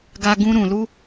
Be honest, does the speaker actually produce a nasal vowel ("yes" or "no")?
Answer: yes